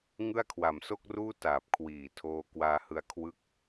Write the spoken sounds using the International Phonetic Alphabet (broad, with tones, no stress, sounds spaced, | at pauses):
ŋ ɯ˥˩ a̯ kʰ w a˨˩ m s o˥˩ k̚ r uː˥˩ t aː˨˩ p̚ kʰ w iː˨˩ tʰ oː˧ k w aː˧ h ɯ˧ a̯ kʰ w ɯ˦˥ k̚